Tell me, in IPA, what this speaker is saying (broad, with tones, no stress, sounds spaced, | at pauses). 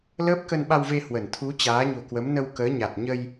l əː˦˥ p̚ k ə˧ n ɓ a˧ w v e˧ h w ə˧˩ n t̪ʰ u˨˦ t͡ɕ aː˨˦ ɲ o̤˨˩ k w ə˨˦ m n ə˧ w k əː˨˦ ɲ a˨˩ t̚ ɲ ə˧ j